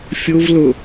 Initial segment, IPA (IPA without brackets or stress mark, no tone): fʲ